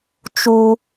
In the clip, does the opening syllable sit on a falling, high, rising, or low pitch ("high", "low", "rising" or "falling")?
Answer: high